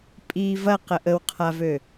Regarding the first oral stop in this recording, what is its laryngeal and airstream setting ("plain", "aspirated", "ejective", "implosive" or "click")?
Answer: ejective